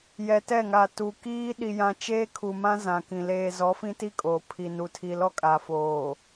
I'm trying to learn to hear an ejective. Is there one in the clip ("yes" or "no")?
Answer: yes